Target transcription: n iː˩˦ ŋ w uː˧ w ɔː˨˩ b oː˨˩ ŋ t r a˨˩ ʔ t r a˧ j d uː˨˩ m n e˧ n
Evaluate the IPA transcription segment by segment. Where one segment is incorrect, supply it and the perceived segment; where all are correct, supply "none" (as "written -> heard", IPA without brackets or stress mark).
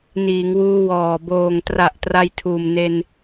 d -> tʰ